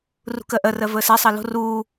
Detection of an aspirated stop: absent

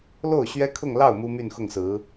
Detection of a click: absent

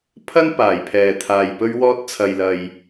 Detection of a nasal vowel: absent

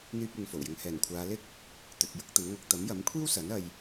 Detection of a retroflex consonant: absent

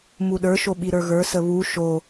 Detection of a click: absent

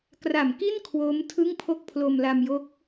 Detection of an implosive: absent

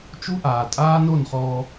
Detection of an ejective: present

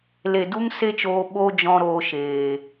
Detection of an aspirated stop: absent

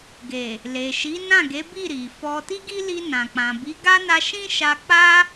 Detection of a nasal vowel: present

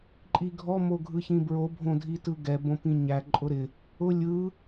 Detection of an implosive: absent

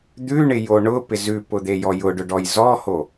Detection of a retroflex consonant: present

